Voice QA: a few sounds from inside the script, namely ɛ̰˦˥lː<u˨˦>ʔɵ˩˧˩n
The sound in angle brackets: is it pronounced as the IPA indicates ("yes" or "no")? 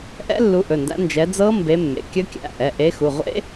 yes